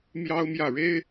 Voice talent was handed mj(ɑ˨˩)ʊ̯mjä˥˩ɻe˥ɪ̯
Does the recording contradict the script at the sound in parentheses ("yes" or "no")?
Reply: yes